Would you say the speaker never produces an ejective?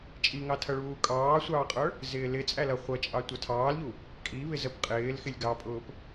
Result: no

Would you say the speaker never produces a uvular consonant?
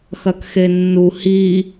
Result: yes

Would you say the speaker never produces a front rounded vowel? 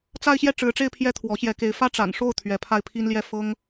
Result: yes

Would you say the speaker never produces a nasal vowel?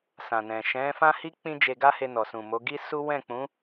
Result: no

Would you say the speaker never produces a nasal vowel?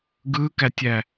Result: yes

